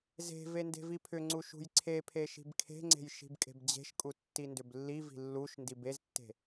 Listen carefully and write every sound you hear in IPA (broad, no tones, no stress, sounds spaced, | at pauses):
z e̤ v e n d e̤ v i pʰ ʏ ŋ͡ǀ u ʃ ṳ j ǀʰ e pʰ e ʃ i̤ b kʰ e̤ ŋ͡ǀ e̤ j ʃ i̤ b kʼ e̤ b d͡ʑ e̤ ʃ kʼ u tː i n d ʏ b lː i v i̤ lː u ʃ n d i b e z tː e̤